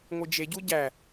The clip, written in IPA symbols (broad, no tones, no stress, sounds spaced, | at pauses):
ŋʷ ɨ d͡ʒ e ɟ u ɟ æ